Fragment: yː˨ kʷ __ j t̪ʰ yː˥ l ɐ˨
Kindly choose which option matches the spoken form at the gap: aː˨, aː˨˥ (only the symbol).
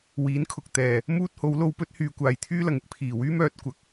aː˨